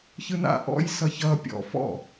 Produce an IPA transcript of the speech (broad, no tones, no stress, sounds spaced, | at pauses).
ç ɯ n a̰ ʔ ɔ̰ j s ʌ ç ʌ pʲ ɔ̰ f ɔ̰